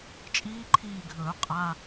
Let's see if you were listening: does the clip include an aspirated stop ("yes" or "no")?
yes